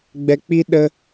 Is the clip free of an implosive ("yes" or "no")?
no